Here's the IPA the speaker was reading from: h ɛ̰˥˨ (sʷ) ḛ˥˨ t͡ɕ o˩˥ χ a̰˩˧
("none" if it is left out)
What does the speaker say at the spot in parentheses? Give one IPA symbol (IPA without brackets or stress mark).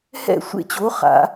sʷ